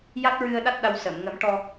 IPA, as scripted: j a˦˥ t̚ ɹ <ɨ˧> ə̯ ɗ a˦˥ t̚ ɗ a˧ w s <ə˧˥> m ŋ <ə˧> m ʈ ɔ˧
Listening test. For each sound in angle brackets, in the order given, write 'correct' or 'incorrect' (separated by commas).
correct, incorrect, incorrect